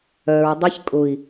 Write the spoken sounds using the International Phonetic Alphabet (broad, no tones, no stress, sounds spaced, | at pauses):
œ ɹ dˤ e ç kʼ ʊ i̯